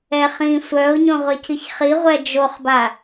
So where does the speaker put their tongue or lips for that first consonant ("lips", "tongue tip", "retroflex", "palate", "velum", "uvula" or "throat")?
uvula